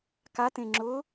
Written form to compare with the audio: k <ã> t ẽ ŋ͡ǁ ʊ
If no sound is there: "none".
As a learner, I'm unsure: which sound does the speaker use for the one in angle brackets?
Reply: a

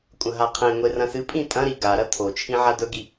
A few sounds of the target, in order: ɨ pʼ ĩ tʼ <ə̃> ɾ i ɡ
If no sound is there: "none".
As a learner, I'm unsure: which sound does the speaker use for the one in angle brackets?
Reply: ɐ̃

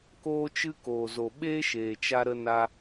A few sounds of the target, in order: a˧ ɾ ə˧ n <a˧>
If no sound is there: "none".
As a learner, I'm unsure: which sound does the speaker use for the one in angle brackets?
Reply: a˧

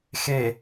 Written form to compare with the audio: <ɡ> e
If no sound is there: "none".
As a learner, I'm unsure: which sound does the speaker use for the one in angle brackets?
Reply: x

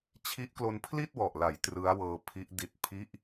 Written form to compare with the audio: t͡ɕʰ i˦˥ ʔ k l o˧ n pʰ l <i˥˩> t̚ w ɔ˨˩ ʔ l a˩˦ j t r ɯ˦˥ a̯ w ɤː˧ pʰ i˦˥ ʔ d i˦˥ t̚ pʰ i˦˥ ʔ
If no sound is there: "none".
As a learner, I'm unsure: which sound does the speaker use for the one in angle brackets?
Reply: i˥˩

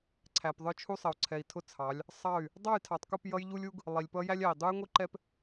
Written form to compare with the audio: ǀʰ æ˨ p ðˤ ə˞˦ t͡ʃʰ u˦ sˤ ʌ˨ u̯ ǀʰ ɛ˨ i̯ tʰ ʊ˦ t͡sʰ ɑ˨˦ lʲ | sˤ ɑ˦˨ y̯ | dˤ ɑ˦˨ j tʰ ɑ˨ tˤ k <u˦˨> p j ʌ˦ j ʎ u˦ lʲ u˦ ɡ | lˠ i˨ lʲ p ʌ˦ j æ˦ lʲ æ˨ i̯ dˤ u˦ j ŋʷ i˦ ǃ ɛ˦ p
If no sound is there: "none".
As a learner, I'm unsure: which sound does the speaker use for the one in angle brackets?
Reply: u˦˨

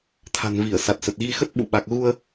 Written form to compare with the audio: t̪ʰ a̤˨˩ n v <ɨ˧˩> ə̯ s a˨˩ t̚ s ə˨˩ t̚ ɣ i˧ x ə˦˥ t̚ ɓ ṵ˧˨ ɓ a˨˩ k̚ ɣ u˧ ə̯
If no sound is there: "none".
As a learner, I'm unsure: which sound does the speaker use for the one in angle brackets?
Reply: i˧˩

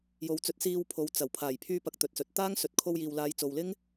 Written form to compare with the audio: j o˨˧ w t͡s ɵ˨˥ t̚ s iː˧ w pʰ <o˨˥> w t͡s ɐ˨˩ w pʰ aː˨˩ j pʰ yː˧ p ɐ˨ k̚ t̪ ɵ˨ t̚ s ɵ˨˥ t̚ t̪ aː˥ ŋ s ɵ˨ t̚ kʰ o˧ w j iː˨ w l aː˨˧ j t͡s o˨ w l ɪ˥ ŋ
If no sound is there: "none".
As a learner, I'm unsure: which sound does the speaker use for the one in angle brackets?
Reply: o˨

